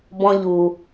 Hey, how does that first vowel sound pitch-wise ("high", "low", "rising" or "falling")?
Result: high